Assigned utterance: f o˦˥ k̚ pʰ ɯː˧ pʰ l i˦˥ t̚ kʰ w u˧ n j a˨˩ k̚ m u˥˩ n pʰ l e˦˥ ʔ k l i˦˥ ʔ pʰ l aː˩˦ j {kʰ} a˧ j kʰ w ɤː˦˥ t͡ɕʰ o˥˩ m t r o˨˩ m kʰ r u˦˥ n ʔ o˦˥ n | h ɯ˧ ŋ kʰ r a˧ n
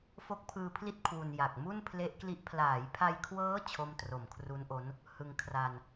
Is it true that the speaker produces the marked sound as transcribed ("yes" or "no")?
no